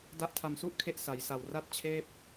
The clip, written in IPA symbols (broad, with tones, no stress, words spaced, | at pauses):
da˦˥ʔtʰa˧msu˥˩ʔkʰe˦˥ʔ sa˩˦jsa˨˩w ra˦˥t̚t͡ɕʰeː˦˥p̚